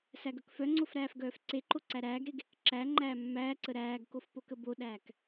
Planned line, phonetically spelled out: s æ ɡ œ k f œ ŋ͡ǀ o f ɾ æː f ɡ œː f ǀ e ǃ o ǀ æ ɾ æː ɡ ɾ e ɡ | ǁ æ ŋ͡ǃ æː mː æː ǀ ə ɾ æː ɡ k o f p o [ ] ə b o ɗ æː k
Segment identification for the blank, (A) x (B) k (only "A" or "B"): B